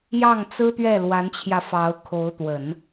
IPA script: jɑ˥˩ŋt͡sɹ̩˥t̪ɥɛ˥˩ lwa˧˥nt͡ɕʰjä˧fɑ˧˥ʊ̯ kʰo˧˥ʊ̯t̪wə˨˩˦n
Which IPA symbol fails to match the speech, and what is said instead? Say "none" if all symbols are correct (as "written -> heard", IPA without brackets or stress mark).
none